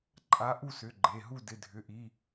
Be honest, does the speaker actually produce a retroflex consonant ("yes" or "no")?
no